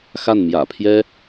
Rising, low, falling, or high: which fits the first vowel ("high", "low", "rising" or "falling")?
falling